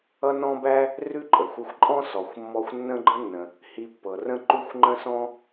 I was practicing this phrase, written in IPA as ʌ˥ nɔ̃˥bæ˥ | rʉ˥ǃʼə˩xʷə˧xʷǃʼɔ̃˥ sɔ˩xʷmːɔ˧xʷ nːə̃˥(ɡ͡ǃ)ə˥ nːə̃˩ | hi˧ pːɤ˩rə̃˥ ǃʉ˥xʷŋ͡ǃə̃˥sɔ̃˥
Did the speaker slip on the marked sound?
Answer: no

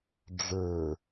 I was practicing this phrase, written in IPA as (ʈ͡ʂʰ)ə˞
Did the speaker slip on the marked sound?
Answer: yes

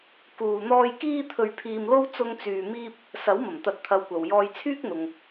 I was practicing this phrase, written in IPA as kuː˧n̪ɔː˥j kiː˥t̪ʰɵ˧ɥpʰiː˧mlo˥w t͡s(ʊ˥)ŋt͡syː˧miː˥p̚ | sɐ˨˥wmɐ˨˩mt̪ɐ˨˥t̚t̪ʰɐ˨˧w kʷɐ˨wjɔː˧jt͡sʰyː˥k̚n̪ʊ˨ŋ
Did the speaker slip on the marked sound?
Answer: no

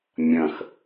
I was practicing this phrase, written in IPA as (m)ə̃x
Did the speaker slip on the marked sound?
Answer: yes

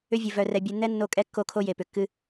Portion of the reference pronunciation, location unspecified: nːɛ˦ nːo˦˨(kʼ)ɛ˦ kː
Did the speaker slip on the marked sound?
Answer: no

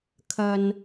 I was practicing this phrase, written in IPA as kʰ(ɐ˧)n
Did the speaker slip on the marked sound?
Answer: no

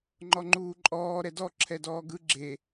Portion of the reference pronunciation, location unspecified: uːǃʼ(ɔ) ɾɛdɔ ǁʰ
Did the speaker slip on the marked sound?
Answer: yes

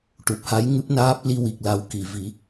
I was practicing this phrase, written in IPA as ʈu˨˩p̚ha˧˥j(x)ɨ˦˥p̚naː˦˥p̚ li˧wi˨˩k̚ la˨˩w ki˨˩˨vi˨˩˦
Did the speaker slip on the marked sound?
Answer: yes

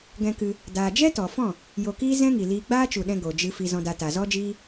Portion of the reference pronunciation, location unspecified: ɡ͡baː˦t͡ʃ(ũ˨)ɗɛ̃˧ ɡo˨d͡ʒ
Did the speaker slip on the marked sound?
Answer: yes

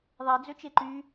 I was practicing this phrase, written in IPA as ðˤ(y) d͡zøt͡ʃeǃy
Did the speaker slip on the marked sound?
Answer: yes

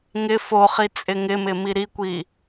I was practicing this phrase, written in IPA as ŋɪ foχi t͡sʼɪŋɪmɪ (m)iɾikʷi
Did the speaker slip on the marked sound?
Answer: no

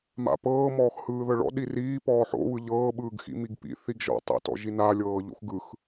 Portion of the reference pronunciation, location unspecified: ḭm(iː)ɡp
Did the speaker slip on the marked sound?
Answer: yes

